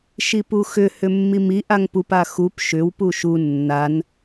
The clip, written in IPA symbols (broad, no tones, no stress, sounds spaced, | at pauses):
ʃ i p u x ʏ h ʏ mː i m i ʔ a ŋ p u p a x u p ʃ ʏ w p u ʃ u nː a n